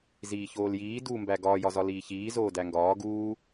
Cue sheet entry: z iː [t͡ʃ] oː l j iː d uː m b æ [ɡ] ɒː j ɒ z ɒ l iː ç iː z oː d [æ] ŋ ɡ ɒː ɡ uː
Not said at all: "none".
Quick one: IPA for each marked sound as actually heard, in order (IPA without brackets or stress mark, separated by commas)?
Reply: ç, ɡ, æ